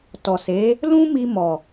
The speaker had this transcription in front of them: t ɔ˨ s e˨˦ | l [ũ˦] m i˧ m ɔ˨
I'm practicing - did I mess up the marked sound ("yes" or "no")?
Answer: no